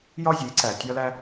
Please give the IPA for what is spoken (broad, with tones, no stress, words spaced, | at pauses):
jɒ˥zʲe˩˥ǀæ˩ tʲɒ˥læ˥